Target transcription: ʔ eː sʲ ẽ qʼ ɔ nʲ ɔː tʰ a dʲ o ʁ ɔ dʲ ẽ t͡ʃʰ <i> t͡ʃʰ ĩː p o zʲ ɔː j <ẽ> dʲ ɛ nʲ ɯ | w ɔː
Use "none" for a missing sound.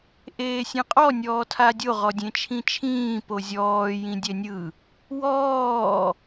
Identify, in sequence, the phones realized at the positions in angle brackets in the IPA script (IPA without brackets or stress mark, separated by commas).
ĩ, ĩ